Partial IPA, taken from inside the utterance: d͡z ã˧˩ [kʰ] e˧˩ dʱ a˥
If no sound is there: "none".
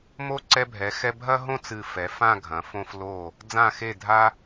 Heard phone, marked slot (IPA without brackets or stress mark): x